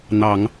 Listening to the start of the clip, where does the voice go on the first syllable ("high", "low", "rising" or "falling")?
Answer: low